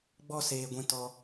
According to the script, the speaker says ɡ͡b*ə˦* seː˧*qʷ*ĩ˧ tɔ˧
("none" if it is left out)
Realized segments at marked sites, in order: ɔ˦, ɡʷ

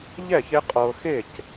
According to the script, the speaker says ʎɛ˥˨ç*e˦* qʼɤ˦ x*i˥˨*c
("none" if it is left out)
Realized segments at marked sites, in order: e˦, e˥˨

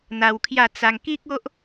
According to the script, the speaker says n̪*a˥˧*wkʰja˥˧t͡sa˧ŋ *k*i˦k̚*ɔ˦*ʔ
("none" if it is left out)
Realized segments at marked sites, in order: a˧, k, o˦

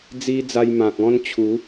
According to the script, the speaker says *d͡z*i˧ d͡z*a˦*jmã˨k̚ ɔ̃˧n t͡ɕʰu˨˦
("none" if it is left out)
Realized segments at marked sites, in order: d͡z, a˧

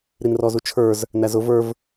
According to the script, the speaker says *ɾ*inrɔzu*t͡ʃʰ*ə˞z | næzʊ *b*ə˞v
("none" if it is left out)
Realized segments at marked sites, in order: ɾ, t͡ʃʰ, v

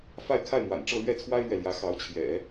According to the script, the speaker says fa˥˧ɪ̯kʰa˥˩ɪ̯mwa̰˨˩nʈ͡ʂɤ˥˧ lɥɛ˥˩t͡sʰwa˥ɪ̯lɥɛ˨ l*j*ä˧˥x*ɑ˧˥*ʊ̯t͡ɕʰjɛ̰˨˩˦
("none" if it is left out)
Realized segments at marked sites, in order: j, ɑ˧˥

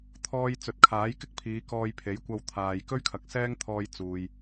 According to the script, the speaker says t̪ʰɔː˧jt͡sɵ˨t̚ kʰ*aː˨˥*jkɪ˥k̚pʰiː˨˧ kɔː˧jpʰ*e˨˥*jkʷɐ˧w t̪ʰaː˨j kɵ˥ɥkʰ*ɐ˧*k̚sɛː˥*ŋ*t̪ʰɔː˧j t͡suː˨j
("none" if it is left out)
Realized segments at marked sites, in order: aː˨˥, e˨˥, ɐ˨˥, ŋ

